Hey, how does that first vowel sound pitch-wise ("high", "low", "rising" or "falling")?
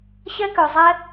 high